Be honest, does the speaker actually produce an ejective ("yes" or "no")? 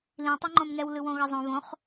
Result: no